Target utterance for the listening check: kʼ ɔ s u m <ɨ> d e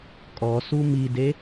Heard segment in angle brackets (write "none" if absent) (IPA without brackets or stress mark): i